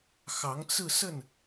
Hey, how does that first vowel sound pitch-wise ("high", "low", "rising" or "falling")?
rising